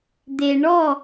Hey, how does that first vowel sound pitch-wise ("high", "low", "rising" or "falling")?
low